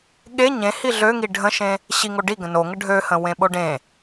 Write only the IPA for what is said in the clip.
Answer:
ɠ e ɲ ẽ h i ɮ ø ŋ i ɖʱ ə̃ ʃ ẽ | ɕ i ŋ o ɖ i ɡ ə̃ n o ŋ ə ɖʱ ø h ə̃ w ẽ ɓ o ɖ ẽ

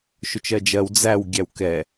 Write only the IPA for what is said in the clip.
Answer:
ʃ ʊ t͡ʃ ɜ d͡ʒ ɜ w d͡z æ w ɡʲ æ w k ɛ

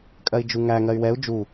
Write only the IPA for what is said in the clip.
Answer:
kʼ ɜ i̯ d͡ʒ u ŋ æ ŋ ɜ y̯ w ɛ u̯ d͡ʒ u

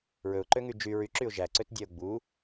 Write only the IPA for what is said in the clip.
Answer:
ɹ ɵ ʊ̯ ǃ ø ŋ y d͡ʒ y ɹ y ǁ y ʊ̯ ʒ æ ǀ ø t dʲ æ ʊ̯ ɡ͡b u

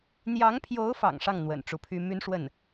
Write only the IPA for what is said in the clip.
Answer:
n̪ j ɑ˧˥ ŋ pʰ j o˧˥ ʊ̯ f ɑ̰˨˩ ŋ ʂ ɑ˥˩ ŋ n̪ w ə̰˨˩ n ʈ͡ʂ u˧˥ pʰ y˥ m y˥ n ʂ w ə˥˩ n

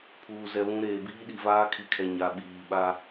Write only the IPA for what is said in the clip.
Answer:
pʰ uː˨ z ɛ˨ β ũ˨˦ ɾ eː˨ b iː˦ ɗ i˨ v aː˦ kʰ i˨ kʰ ɛ˨ ɲ a˨ ɓ iː˨ ɓ a˦

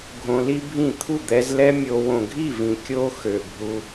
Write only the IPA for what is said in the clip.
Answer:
ɡʱ õ˧ l i˦ bʱ ĩ˦˨ t̪ʰ u˦˨ d̪ ɛ˧ z l ɛ˦ mʲ o˧ w õ˨ ɡʱ i˦˨ v ĩ˨ kʲ o˦ x ø˨ bʱ u˧

